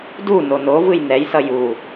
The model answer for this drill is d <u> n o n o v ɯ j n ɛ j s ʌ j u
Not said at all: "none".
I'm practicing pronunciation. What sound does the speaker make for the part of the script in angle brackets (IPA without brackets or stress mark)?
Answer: u